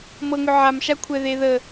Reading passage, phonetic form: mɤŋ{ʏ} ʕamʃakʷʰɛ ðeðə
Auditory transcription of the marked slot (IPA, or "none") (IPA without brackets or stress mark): ʏ